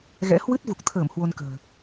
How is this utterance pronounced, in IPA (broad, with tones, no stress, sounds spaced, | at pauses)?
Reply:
ɣ ɛ̰˧˥ h w ɨ˦˥ t̚ v u˨˩ k̚ t̪ʰ əː˧˩ m h w o˧ n k ə̤ː˨˩